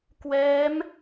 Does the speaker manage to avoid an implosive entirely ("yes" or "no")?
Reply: yes